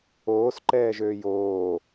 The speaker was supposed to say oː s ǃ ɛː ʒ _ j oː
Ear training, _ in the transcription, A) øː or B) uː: A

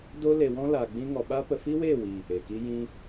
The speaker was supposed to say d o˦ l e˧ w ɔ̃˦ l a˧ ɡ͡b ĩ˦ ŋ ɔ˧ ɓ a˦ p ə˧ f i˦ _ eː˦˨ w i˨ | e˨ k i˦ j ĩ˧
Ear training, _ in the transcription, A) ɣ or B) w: B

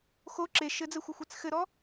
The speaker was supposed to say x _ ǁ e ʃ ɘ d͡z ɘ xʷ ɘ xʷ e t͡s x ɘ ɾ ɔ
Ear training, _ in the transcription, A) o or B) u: A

